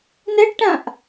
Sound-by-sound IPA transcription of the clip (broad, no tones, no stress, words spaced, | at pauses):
nɛɖʈãʔ